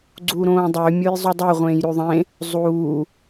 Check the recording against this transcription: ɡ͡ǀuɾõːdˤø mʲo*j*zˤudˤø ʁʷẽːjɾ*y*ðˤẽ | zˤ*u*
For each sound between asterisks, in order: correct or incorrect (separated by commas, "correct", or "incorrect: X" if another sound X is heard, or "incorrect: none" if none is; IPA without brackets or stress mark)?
correct, correct, incorrect: uː